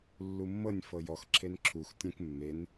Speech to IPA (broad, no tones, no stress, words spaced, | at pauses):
lːumːɤnʲ fɤjɔx ǁʰenǁʰux tʲẽk mːen